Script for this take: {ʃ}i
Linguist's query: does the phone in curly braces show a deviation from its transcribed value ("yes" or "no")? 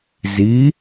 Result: yes